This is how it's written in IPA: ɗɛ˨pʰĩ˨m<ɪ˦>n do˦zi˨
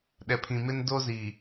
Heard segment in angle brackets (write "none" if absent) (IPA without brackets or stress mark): ɪ˦